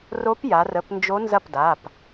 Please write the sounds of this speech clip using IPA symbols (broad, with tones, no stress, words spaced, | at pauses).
ro˧˥p ja˩˧rə˩˧˩pnd͡ʒo˧˥ nzɐ˥˩pda˩˧˩p